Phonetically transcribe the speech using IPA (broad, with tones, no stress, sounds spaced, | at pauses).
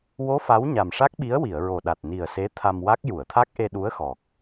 w o˧˥ f a˧˥ w ɲ a˨˩ m ʂ a˦˥ k̚ ɓ i˧˥ ə̯ w i˨˩˨ ə̯ ɹ o˨˩ ɗ a˨˩ t̚ n i˨˩ ə̯ s e˧˥ t̪ʰ a˧ m w a˦˥ k̚ j u˨˩˨ ə̯ t̪ʰ a˦˥ k̚ ʔ e˧ ɗ u˧˥ ə̯ x ɔ˨˩ k̚